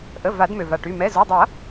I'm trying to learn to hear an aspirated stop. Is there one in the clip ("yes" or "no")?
no